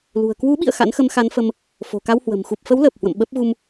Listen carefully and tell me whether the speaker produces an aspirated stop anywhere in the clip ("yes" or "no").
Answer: no